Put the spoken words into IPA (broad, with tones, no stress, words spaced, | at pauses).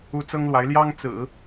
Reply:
u˥ t͡sɤ˥ŋlwa˧˥ɪ̯ ljɑ˥ŋt͡sɹ̩˨˩˦